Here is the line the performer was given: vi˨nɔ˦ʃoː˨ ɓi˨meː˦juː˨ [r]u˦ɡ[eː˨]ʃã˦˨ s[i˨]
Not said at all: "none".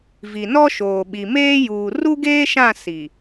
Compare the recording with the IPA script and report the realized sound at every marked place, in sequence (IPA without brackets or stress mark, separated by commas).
r, eː˦, i˨